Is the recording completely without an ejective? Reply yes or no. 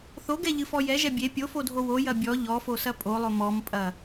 no